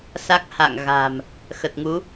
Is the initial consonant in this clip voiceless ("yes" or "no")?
yes